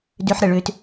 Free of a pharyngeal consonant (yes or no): no